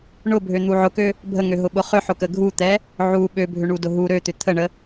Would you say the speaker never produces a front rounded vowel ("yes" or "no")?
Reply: no